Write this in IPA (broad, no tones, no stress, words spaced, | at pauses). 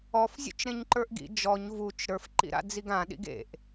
ɔfzʲṵt͡ʃ ɾẽɲǃə˞ʔɡḭ d͡ʒɔɲ vut͡ʃ ɾə˞fǃḭɾa̰d͡ziɡ ãɗḭɡ ḛʔ